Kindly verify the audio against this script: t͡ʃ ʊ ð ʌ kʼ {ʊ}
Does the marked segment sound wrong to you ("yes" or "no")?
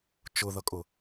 no